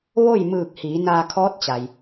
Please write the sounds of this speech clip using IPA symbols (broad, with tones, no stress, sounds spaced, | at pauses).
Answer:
ʋ o˥˨ j m ɯː˧˩ k̚ h iː˩˧ n aː˧ kʰ ɔː˧˥ t̚ t͡ɕ a˩ j